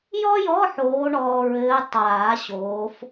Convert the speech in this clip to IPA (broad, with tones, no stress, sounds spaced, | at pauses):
j ɔ˥ j ɔ˧˥˧ ħ oː˨˦ ɳ ɔː˨ ɹ ɘː˨˦ tˤ aː˨˩˦ ɕ oː˨˦ f